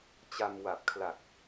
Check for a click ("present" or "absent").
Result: absent